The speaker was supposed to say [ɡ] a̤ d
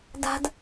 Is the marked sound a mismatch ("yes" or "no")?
yes